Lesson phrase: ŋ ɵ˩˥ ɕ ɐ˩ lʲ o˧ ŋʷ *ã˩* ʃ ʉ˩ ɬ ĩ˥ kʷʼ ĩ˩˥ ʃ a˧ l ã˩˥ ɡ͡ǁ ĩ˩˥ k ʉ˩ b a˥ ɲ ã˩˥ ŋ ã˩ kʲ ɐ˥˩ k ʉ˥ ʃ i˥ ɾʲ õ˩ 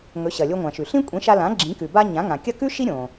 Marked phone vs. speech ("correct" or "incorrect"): correct